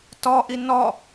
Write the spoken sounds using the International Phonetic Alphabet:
t ɔ ʔ i n ɔ

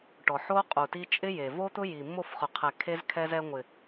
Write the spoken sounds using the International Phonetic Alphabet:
ʈ ɔ˨ ħ o˦ qʼ u˨ t i˧ t͡ʃʼ ɪ˦ j e˨ v o˦ t̪ ʊ˦ j i˨ mː o˦˨ f χ ʊ˨ qʰ ɛ˨ kʰ e˦ z kʰ ɛ˦ z ɛ˧ ŋʷ ɪ˨

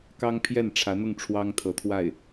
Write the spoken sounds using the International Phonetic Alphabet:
k ɑ˥ ŋ pʰ j ɛ˥˩ n ʈ͡ʂʰ ä˧˥ n̪ ʊ˥˩ ŋ ʈ͡ʂʰ w ɑ˥ ŋ t̪ʰ ɤ˧˥ t̪ʰ w a˥˩ ɪ̯

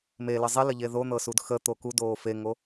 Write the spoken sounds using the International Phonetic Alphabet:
m e l ə zˤ i l ə ʎ e ð o n̪ ɤ s u d x ə t̪ o k u d oː f e ŋ o

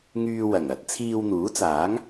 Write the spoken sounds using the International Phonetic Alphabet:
ŋ yː˧ w ɐ˨˩ ŋ ɐ˨˥ t̚ t͡sʰ iː˧ w n̪ uː˨˥ t͡s aː˨˥ ŋ

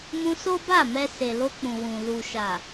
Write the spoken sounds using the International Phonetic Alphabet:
m ũ˧ s o˦ b a˦˨ m ɛ˧ s e˨ l o˧ k͡p ũ˨ w ũ˨ l u˨ ʃ a˨

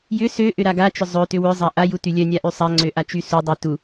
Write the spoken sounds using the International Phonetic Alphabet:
j ʏ s ø ʔ ʏ ɾ a ɡ a t͡ʃ ʏ zˤ ø t ʏ w ʏ zˤ a ʔ a j u t y lʲ œ nʲ a ʔ y sˤ a ŋ͡ǀ ø ʔ a t͡ʃ y s u dˤ œ t u

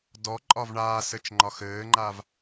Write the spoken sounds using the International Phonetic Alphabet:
d ɔ ǃʼ ɒ v ɳ aː s ɘ t͡ʃ ŋ͡ǃ ɒ x ɘː ŋ͡ǃ a v

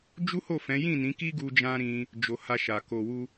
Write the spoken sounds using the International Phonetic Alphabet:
d͡ʒ u˦ h o˦˨ f ɛ̃˨˦ j ĩ˦˨ n ĩ˨˦ k i˦ ɡ u˧ d͡ʒ ã˦ ɾ ĩ˧ | d͡ʒ o˨ h a˧ ʃ a˨ k o˨ w u˧

